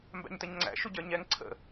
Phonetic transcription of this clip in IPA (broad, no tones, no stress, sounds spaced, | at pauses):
m b æ̰ ɲ t ə ɲ ŋ͡ǀ æ̰ ʃ u ɟ ə˞ ɲ ɛ ŋ ǀʰ ə̰